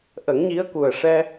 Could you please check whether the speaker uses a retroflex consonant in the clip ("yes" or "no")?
yes